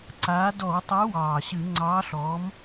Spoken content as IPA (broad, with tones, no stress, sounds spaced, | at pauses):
ǀ aː˨˥ d ɔ˧˩˧ w tˤ œ˨˥ w ɑː˨˩ ɕ ɨ˧˩˧ ŋ͡ǀ ɑː˨˥ ɬ ɔː˨˥ m